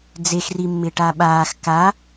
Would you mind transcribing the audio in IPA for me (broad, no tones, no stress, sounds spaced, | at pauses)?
d͡z e x r i mː ɪ ʈ a ɓ aː x k a